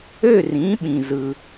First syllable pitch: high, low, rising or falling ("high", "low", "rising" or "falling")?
falling